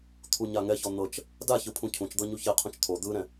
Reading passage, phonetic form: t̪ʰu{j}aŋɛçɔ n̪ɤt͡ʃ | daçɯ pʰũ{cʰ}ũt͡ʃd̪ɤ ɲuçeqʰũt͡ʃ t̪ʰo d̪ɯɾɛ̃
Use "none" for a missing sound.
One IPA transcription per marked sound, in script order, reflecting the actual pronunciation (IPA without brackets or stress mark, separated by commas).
ɲ, cʰ